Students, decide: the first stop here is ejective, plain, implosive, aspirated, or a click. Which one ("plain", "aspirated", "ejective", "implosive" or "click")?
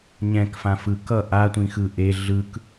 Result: plain